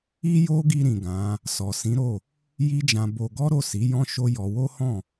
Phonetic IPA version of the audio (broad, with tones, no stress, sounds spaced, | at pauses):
i˦ j o˦ ɡ i˧ ɾ ĩ˨ ɡ ã˨˦ | s ɔ˨ s ĩ˨˦ ɾ o˦˨ | j i˦ d͡ʒ ã˧ b o˧ ɡ ɔ˦ ɾ o˦˨ s i˨˦ j ɔ̃˦ ʃ o˦ j ɔ˧ w o˦ h ɔ̃˦˨